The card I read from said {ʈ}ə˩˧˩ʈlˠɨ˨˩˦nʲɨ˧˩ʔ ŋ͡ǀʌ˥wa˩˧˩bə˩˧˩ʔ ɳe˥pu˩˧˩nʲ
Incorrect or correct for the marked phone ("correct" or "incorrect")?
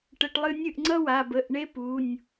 correct